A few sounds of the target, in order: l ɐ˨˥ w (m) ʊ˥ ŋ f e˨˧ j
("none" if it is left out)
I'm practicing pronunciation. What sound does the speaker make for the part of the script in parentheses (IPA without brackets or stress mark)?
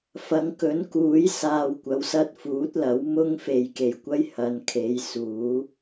m